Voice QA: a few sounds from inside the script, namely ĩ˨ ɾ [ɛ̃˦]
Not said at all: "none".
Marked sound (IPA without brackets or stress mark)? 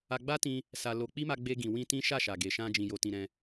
ɛ̃˧